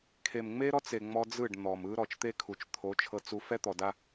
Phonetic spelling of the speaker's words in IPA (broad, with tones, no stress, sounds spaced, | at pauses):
kʰ e˨ m ŋ͡m e˦ ɾ ɔ˦ t͡s e˨ ŋ͡m ɔ˦ d͡z ɯ˦˨ ɖ n̪ ɔ˨ m ɯ˦ ɾ ɔ˨ t͡ʃ t̪ e˦ kʰ u˨ t͡ʃ t̪ʰ o˨˦ t͡ʃʰ ɤ˦ t͡s u˦ f ɛ˦ t̪ ɔ˨ d a˦